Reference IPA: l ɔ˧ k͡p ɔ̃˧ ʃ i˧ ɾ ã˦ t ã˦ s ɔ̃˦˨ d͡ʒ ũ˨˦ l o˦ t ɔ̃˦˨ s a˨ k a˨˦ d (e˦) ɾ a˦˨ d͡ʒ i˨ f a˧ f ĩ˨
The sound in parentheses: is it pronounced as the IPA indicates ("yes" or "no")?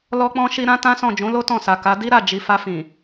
no